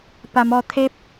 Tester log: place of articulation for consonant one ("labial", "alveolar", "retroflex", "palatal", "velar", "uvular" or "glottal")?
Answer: labial